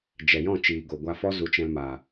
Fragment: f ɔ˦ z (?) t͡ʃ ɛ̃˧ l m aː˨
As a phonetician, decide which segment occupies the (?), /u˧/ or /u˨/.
u˧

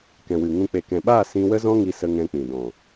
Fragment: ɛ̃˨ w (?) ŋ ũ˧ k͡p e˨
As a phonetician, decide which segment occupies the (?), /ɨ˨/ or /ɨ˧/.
ɨ˨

